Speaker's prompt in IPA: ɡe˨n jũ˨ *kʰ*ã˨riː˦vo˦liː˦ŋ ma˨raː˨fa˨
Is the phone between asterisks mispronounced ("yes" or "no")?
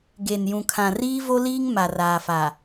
no